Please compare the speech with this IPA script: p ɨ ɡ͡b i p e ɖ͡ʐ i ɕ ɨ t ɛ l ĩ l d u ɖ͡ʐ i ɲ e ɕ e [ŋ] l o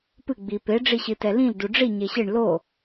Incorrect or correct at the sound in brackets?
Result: incorrect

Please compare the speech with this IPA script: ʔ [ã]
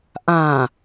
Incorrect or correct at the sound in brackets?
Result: correct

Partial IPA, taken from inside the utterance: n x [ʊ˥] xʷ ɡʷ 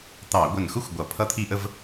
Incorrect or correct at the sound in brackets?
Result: correct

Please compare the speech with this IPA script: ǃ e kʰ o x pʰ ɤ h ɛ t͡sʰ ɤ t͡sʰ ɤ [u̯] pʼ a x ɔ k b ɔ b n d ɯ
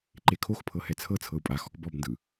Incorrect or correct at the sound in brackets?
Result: correct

